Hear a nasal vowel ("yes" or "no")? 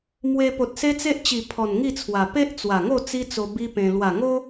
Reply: yes